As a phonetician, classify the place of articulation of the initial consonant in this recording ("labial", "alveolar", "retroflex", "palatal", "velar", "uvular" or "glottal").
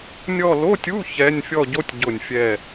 alveolar